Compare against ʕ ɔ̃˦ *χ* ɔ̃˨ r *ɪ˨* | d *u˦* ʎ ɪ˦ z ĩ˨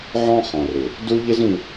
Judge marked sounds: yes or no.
yes, yes, yes

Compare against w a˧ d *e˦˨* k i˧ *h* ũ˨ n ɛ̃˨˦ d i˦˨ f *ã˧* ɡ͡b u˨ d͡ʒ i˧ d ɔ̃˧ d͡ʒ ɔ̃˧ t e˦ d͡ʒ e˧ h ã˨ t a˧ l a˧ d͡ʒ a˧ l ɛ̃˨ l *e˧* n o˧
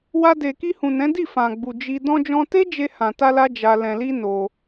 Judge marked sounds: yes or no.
no, yes, no, no

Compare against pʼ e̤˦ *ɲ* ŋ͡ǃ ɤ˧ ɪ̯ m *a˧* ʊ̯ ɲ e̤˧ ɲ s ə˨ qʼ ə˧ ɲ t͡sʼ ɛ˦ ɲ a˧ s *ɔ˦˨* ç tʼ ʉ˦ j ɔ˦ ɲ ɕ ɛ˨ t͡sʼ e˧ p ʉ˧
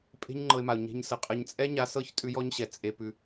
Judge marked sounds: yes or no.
yes, no, no

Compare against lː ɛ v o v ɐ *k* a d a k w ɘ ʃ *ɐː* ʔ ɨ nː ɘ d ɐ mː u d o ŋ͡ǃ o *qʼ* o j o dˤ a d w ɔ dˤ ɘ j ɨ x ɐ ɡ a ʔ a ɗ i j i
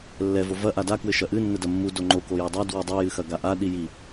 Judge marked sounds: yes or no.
no, no, no

